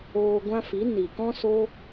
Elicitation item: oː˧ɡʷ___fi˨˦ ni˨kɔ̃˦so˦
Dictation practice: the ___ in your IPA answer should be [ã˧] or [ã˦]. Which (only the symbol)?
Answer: ã˦